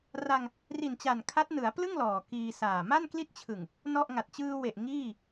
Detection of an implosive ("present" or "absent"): absent